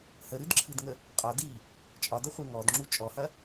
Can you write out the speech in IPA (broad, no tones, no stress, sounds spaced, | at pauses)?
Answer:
h ə ɾ ɨ d ǁʰ ɨ d ŋ ə | qʼ ɒ d i | t͡ʃʼ ɒ d ɐ χʷ e ŋ ɔ d ŋ͡ǁ u t͡ʃʼ ɔ h ɐ